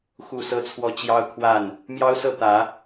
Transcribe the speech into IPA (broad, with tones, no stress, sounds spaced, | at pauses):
x u˥˨ s ɤ˦ t͡sʰ w ɔ˦ t͡ɕ j ɑ˦ ʊ̯ kʰ w a˥˨ n | m j ɑ˦ ʊ̯ s ɤ˥˨ t̪ ä˨˦